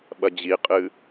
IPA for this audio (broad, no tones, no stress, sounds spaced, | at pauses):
ɓ ɐ d͡ʑ i qʼ ɨ